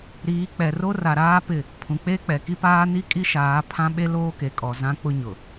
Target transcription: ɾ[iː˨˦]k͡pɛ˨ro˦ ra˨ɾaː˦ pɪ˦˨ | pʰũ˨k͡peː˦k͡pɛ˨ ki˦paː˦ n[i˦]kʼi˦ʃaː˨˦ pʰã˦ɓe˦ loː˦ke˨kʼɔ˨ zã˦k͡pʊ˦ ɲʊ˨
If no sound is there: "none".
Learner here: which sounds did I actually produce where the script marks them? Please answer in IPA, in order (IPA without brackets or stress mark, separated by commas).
iː˨˦, i˦